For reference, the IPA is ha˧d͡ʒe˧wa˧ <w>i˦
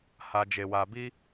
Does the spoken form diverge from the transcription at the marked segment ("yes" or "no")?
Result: yes